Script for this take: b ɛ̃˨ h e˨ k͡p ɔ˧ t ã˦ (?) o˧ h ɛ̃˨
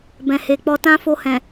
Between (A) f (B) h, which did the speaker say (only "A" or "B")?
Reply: A